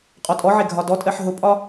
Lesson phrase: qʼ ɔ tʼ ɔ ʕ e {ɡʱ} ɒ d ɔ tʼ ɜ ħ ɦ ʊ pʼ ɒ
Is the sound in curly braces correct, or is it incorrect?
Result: correct